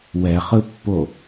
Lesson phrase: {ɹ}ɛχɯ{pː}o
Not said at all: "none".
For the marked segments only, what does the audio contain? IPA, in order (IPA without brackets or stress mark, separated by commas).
w, pː